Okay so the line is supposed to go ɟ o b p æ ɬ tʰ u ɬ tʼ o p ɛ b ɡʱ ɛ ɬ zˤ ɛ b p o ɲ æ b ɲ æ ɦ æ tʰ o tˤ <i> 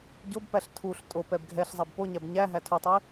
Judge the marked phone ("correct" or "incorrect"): correct